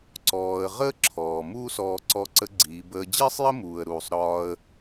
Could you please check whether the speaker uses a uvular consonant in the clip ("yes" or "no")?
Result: yes